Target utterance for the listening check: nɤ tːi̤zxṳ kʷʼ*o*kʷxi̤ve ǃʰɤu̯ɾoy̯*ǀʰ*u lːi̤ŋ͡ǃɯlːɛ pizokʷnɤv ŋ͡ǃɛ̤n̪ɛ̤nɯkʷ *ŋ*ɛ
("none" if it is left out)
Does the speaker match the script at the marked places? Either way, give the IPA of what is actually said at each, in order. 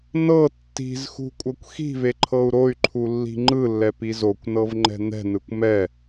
ɤ, ǃʰ, m

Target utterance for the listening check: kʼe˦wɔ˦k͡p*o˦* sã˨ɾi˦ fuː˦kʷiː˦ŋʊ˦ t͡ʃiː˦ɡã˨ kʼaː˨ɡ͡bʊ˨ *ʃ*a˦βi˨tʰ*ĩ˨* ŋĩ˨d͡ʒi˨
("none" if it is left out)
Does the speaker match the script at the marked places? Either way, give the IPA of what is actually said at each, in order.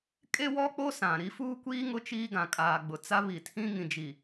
o˦, t͡s, ĩ˦

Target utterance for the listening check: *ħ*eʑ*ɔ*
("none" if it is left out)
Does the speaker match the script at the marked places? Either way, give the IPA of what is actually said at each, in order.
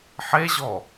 ħ, ɔ

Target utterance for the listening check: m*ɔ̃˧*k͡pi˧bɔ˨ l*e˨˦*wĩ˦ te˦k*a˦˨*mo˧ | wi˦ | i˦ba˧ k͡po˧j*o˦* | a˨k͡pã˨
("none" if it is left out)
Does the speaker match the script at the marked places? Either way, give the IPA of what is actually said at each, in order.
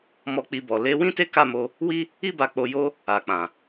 ɔ˧, e˨˦, a˦˨, o˦

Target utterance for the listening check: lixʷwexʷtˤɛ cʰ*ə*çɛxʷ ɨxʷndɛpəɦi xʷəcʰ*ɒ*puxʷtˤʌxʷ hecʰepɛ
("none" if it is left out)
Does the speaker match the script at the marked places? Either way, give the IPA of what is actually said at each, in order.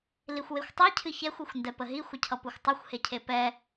ɨ, ʌ

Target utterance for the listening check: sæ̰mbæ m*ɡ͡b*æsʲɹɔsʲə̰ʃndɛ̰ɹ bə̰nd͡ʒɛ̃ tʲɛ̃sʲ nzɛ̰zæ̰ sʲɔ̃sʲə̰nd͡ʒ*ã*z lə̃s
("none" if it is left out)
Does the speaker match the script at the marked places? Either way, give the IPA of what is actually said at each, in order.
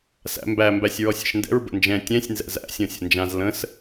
b, ã

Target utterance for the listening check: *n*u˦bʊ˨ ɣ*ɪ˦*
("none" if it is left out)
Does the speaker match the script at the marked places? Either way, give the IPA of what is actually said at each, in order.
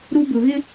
ɾ, ɪ˦

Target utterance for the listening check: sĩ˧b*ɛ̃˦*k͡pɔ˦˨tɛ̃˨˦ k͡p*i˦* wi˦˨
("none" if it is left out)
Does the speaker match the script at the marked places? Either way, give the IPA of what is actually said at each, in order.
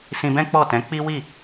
ɛ̃˦, i˦

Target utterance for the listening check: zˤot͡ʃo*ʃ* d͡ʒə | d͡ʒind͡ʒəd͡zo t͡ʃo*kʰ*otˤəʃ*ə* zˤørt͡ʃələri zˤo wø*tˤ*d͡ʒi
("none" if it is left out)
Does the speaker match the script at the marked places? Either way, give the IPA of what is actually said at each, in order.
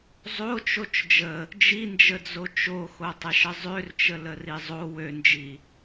t͡ʃ, x, ə, n

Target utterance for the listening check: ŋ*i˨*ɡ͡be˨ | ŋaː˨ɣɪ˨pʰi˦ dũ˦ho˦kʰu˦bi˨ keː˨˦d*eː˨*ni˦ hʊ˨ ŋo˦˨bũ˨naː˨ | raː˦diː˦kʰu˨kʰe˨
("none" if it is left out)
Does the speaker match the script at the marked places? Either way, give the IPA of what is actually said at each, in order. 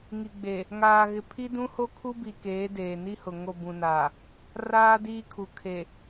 i˨, eː˨

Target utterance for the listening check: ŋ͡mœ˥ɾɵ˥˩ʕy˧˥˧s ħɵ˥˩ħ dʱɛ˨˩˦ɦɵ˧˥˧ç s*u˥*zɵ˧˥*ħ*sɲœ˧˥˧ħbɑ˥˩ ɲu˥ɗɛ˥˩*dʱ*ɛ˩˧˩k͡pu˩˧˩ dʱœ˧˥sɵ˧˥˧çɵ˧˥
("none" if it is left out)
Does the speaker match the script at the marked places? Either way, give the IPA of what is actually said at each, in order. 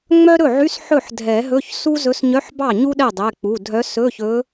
u˥, none, dˤ

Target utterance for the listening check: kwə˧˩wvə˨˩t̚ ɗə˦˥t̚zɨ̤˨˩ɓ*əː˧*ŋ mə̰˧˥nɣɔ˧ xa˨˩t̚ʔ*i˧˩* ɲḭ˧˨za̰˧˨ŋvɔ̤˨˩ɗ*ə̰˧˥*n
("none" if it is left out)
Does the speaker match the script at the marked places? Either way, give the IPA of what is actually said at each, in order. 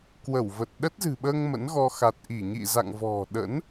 əː˧, i˧˩, ə̰˧˥

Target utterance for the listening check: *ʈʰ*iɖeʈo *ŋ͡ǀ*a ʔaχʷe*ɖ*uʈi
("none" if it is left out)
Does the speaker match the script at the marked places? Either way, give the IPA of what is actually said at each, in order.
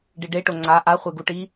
ɖ, ŋ͡ǀ, ɡ

